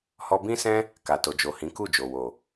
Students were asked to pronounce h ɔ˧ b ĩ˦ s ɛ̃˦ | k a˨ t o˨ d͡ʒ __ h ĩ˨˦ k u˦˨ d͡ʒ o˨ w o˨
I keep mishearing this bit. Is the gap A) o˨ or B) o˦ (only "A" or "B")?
A